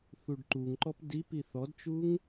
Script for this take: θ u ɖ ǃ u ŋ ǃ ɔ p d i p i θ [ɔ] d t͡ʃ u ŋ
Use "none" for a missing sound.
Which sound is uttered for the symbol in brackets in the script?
ɔ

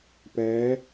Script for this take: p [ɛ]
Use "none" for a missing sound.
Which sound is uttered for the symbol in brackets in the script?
ɛ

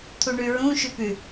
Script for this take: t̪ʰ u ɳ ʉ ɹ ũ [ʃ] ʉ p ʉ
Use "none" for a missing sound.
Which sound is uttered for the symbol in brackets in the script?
ʃ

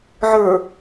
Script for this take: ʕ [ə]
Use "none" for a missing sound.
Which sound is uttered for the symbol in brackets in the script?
ə˞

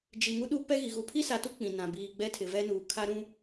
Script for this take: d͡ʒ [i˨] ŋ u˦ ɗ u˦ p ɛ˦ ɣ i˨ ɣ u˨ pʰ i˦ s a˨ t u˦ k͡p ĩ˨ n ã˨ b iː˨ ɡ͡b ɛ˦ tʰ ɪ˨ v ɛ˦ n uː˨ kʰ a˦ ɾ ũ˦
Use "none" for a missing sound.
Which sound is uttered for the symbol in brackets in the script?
i˨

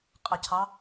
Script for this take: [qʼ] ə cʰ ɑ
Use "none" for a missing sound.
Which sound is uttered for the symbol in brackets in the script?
qʼ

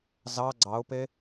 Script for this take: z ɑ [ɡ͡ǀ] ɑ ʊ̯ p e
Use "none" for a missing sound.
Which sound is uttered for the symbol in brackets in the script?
ɡ͡ǀ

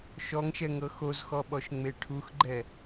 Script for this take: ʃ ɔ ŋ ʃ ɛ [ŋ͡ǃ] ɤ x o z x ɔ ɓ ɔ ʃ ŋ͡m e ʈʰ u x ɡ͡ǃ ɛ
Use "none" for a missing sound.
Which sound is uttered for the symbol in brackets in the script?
ŋ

